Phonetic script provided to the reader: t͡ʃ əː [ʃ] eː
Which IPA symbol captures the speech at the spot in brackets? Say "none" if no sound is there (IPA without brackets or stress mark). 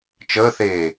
θ